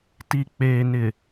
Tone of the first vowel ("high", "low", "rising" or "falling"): low